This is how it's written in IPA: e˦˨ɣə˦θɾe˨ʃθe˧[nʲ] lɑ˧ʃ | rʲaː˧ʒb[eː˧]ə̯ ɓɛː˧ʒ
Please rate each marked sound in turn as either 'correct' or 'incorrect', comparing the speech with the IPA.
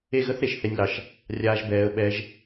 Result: correct, incorrect: ɛː˧

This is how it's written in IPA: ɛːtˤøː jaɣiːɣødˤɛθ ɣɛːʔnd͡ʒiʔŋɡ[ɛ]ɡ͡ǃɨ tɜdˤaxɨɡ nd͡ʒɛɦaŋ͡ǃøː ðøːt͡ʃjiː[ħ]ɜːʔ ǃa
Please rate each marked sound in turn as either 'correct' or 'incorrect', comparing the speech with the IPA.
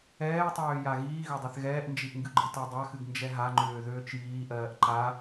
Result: incorrect: ɨ, incorrect: ʔ

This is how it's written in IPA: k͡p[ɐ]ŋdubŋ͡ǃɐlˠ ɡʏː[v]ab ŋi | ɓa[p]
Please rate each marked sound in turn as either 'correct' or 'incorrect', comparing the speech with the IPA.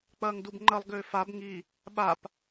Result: incorrect: ɐː, incorrect: f, correct

